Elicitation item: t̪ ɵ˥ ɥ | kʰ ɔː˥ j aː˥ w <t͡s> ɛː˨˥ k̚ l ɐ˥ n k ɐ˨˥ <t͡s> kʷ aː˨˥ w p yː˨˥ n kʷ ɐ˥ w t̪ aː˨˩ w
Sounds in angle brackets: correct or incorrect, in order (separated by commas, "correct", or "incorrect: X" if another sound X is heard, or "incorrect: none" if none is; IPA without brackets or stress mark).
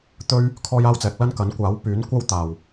correct, incorrect: n